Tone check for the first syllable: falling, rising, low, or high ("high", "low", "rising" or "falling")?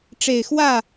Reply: low